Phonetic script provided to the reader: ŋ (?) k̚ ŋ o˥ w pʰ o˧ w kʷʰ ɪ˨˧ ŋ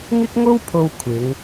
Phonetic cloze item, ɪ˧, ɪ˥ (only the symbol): ɪ˥